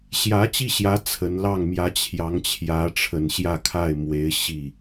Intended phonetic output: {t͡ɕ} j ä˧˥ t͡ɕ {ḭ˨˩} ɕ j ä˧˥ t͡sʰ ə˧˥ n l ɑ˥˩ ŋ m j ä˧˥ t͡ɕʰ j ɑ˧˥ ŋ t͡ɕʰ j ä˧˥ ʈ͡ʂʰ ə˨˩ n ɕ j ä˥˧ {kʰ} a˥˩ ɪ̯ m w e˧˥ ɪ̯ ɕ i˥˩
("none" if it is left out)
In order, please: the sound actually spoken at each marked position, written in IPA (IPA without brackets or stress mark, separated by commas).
ɕ, i˥˩, kʰ